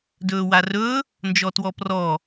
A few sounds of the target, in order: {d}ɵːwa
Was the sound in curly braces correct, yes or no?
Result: yes